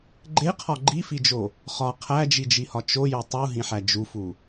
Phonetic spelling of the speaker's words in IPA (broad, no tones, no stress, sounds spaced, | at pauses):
ɡ͡ǃ e qʰ ɒ ɡ͡ǃ i f i d͡ʒ o | χ ɒ qʰ æ d͡ʒ i d͡ʒ i h ɒ t͡ʃ o j o tˤ u ɦ ĩ ħ æ d͡ʒ u f u